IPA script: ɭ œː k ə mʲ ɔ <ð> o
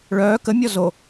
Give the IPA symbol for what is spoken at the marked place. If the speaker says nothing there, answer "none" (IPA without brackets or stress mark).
z